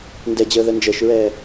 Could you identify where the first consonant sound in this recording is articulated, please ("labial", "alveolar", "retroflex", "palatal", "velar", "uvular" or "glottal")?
alveolar